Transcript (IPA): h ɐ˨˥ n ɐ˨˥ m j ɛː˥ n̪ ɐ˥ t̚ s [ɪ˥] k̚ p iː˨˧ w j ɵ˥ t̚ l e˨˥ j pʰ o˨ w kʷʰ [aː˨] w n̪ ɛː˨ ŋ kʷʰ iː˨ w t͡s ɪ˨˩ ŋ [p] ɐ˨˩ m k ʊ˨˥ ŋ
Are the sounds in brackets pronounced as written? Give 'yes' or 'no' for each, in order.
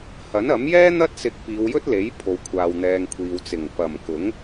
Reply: no, yes, yes

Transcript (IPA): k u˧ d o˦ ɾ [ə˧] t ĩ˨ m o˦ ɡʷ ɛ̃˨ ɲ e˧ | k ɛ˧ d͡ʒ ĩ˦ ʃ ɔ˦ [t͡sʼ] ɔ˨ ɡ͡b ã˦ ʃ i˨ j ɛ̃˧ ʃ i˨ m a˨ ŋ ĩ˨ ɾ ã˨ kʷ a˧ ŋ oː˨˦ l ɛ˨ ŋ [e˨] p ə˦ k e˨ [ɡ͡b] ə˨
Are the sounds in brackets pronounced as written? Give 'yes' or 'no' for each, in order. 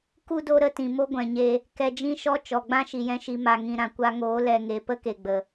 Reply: yes, no, yes, yes

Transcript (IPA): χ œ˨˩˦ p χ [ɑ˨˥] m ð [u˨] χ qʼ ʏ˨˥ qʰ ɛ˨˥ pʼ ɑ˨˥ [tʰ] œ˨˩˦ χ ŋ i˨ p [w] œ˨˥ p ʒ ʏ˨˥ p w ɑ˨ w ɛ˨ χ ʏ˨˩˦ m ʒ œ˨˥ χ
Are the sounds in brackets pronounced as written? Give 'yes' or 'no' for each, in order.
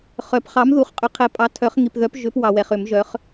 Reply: yes, yes, yes, no

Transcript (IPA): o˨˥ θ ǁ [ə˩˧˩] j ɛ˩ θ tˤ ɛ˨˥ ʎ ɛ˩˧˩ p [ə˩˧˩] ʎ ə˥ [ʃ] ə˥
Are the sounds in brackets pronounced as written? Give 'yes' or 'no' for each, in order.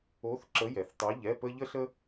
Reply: no, no, no

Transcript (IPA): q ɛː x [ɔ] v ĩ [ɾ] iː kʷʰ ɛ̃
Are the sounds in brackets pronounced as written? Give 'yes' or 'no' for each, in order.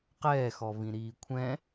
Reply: yes, yes

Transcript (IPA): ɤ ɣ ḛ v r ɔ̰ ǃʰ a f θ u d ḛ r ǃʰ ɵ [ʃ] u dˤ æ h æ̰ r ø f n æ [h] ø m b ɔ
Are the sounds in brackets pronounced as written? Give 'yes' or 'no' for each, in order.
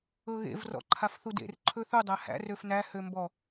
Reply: no, yes

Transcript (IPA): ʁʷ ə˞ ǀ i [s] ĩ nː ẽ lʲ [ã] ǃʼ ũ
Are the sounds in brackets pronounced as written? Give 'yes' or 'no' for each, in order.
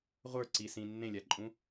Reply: yes, no

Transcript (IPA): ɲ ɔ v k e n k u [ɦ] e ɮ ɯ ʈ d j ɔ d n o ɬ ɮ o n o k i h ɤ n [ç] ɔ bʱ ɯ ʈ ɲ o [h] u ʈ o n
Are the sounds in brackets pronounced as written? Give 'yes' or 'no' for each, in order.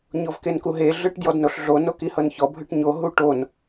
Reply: yes, yes, no

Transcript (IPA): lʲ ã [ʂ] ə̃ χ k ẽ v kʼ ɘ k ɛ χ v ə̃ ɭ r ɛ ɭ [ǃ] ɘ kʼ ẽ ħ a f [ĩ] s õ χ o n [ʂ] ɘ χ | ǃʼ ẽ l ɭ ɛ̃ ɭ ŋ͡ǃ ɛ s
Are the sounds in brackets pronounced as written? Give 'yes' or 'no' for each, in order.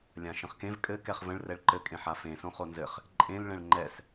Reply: no, yes, no, no

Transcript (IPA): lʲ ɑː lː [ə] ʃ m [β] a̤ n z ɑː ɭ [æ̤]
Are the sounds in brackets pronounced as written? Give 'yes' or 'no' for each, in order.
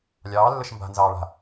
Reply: yes, no, no

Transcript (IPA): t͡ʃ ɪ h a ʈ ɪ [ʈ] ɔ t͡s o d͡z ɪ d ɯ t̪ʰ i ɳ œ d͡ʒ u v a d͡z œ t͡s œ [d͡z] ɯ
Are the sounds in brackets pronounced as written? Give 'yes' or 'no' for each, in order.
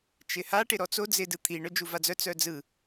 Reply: no, yes

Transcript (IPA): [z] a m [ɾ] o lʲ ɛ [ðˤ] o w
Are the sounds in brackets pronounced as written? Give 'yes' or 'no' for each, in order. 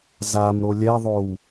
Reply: yes, yes, yes

